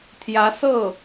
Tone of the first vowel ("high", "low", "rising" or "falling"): rising